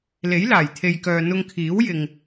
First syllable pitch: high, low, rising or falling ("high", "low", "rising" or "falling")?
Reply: rising